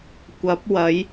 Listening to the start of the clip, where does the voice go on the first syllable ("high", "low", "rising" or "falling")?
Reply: rising